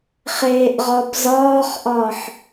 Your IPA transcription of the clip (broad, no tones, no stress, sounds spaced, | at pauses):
χ eː ʔ ʁ ɒ b z ɒː χ ʔ ɒ ħ